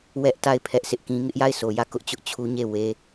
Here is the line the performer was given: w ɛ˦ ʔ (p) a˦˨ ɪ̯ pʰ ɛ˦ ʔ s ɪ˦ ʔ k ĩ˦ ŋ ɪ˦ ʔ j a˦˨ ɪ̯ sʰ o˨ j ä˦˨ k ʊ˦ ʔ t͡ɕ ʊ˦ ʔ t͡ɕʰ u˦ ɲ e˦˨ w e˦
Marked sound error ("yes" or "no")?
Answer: yes